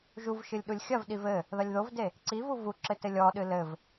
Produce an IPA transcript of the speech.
ʒ u v ʃ ɨ lʲ ɗ u lʲ xʲ ɐ v ɗ i v ɘ | ð ɐ lʲ ð o v d e | ǀ i v u v u ǁ ɘ t ɘ lʲ ɔ ɗ ɨ l ɘ v

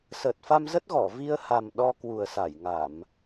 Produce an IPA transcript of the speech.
s əː˨˩ t̚ f a˧ m z ə˦˥ t̚ ɣ ɔ˧˩ v i˧ ə̯ h a˨˩ m ɗ ɔ˧ k w u˨˩ ə̯ s a˧˩ j ŋ a˧˩˨ m

